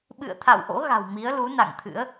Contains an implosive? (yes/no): yes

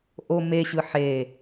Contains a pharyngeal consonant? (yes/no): yes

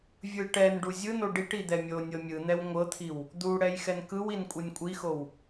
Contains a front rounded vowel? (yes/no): no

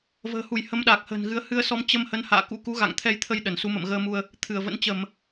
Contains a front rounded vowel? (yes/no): no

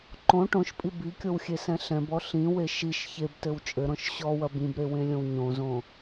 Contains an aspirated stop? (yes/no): no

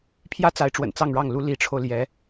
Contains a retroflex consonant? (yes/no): yes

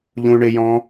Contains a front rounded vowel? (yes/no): yes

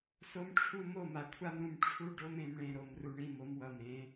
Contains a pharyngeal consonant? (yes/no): no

